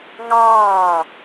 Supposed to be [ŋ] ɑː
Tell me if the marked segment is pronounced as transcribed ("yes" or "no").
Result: yes